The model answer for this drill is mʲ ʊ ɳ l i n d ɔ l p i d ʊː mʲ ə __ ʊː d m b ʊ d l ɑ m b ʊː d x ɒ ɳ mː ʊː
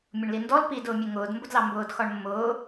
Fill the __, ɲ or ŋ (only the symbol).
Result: ŋ